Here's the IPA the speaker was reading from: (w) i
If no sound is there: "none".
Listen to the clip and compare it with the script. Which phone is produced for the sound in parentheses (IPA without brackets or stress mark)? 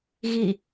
ɣ